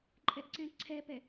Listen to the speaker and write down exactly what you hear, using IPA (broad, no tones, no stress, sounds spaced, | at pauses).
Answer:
ǃʼ ɛ ʔ ǀ ɛ̃ ǀʰ ɛ p ɛ